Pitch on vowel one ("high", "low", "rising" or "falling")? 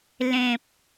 low